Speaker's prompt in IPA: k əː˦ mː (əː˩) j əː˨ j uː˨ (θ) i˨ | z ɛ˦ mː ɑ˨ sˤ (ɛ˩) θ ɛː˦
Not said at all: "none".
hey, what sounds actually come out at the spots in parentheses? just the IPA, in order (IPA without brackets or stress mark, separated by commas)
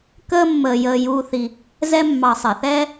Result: əː˨, θ, ɛ˩